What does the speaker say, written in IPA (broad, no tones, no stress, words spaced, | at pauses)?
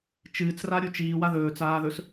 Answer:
t͡ʃɨːt͡sra ɾʲut͡ʃiː waðɵːt͡saːðɵs